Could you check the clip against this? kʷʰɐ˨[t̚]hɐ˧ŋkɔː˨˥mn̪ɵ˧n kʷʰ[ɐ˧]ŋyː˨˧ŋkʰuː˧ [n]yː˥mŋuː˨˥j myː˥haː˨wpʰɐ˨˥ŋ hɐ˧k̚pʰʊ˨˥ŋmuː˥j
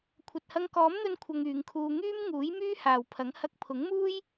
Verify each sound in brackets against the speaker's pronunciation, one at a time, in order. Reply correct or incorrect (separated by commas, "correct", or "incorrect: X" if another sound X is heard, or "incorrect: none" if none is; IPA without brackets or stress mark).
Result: correct, correct, incorrect: ŋ